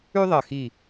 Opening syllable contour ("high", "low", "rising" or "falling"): high